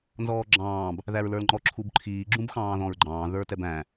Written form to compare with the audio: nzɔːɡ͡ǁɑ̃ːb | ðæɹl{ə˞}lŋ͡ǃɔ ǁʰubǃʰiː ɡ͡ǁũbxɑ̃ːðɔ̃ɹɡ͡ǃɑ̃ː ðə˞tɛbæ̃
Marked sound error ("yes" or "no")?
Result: no